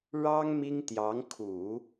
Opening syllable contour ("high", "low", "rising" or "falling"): high